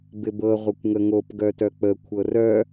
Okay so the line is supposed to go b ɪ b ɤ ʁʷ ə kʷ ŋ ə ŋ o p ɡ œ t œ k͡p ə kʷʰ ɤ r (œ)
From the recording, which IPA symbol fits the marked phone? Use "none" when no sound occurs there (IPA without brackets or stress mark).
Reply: œ